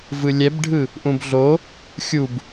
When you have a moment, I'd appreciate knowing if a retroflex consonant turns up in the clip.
yes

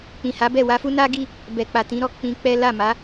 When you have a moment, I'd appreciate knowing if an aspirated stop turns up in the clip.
no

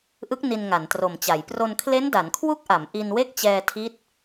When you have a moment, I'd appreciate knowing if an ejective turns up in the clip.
no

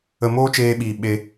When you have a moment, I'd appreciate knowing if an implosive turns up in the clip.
yes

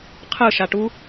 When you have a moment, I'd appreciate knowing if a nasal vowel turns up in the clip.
no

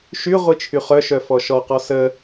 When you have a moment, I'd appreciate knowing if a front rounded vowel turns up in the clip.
yes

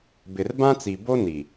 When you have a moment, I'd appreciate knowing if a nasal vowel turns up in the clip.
yes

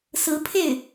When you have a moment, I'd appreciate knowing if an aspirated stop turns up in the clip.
yes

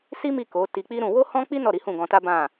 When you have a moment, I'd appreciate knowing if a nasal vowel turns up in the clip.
yes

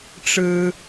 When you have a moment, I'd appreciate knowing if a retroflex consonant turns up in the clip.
yes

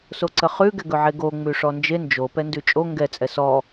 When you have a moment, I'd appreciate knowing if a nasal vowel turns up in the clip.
no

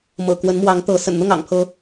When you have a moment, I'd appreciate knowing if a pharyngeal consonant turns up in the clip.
no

